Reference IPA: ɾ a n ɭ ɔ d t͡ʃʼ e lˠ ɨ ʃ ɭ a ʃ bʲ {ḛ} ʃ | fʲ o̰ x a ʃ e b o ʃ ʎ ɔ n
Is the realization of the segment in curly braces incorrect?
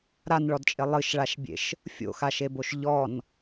no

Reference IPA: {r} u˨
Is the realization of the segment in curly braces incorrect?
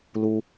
yes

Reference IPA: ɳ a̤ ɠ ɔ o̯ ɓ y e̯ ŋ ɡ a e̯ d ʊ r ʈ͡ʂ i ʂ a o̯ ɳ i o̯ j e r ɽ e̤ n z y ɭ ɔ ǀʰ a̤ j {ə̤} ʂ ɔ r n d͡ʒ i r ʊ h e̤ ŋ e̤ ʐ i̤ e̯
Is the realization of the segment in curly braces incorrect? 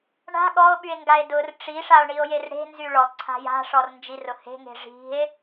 yes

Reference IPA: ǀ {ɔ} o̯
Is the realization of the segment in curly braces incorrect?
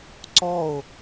no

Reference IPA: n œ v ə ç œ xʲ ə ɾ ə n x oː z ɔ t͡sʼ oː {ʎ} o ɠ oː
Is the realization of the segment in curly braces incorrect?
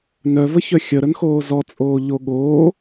no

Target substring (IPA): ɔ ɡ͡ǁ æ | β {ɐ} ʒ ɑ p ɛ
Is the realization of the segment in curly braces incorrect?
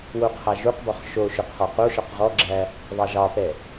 yes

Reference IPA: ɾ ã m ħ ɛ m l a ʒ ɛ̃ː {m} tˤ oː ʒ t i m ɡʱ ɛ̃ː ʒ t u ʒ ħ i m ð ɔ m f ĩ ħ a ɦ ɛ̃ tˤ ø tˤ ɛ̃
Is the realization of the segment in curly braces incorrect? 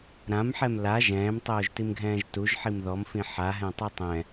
no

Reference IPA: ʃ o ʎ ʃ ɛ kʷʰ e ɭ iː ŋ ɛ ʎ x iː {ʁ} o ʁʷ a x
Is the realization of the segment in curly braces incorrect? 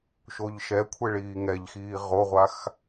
no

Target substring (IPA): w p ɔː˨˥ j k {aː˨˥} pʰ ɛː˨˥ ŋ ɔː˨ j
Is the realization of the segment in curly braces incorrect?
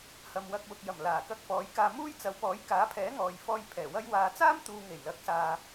no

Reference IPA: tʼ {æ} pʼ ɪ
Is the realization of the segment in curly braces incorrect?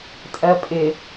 yes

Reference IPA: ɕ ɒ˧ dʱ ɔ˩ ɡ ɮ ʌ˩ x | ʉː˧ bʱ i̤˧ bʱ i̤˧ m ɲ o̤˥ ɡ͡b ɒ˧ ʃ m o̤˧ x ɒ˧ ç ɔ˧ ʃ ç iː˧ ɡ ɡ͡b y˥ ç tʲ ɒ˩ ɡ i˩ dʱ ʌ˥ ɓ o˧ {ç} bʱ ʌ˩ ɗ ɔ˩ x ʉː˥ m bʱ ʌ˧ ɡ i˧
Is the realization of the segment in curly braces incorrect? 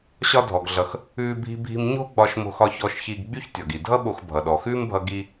yes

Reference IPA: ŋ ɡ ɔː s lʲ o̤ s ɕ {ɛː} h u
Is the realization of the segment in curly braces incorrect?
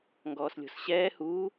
no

